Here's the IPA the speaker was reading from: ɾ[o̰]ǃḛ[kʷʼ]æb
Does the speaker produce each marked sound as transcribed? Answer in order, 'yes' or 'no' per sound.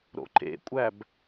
yes, yes

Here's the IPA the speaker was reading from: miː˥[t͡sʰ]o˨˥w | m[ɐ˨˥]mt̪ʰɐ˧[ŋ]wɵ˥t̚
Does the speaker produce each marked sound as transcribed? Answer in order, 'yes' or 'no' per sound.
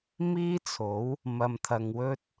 yes, no, yes

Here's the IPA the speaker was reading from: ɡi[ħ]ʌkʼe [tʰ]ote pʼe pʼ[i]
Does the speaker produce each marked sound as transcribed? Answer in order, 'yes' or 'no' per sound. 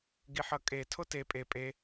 yes, yes, no

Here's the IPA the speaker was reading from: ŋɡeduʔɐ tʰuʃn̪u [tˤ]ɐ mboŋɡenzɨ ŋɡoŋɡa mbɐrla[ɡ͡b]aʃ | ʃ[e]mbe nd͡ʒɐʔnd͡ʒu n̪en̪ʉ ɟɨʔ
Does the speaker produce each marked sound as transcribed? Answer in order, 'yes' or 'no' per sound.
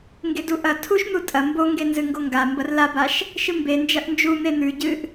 no, no, no

